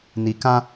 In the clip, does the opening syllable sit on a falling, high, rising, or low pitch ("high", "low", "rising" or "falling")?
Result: low